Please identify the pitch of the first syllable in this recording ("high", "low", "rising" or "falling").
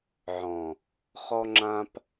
low